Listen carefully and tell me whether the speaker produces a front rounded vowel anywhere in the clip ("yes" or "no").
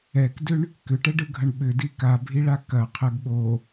yes